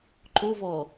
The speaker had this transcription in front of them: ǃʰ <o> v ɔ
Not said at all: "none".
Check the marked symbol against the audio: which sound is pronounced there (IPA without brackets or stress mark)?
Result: o